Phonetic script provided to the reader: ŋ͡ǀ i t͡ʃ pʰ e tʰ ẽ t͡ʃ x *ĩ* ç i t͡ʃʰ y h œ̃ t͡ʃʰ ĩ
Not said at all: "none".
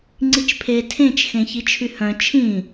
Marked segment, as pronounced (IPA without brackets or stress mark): ẽ